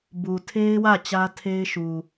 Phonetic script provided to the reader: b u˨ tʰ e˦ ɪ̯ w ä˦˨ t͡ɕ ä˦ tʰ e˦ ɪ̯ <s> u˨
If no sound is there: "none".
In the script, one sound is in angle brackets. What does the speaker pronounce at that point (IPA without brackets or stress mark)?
ʃ